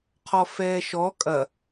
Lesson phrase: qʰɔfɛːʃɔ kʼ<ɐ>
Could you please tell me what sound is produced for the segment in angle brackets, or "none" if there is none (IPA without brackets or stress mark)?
ɐ